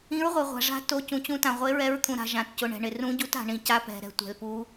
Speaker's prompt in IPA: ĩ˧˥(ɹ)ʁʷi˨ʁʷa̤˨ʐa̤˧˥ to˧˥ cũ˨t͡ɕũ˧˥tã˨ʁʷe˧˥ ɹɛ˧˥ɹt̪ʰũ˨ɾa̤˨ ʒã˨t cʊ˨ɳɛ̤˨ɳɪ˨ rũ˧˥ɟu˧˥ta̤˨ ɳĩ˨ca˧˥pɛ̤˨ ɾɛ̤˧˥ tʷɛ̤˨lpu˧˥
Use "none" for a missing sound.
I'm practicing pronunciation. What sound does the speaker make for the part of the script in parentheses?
ɹ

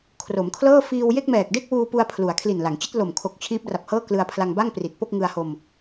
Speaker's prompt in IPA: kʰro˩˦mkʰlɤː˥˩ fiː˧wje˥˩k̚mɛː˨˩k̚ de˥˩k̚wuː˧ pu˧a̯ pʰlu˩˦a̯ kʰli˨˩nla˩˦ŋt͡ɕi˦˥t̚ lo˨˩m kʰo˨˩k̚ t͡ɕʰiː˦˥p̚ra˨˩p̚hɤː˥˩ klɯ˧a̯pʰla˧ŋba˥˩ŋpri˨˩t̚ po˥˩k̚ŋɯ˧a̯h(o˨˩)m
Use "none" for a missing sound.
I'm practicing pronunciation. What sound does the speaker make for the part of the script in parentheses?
o˧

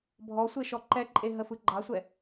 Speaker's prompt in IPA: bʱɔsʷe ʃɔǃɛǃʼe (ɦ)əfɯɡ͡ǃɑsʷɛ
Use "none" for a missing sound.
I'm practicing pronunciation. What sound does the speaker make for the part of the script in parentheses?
ɦ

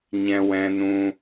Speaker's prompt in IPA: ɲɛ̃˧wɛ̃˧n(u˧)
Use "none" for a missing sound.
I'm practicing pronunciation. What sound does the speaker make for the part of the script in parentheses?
ũ˧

